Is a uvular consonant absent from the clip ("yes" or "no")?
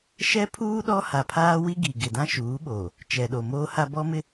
yes